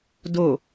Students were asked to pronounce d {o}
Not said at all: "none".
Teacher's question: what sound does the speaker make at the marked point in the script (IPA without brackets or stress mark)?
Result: o